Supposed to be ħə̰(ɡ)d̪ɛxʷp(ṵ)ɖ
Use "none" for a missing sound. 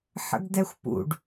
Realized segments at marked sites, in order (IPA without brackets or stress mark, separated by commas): ɡ, ṵ